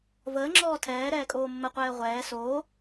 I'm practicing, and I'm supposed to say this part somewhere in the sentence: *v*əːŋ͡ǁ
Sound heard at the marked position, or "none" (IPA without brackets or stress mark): v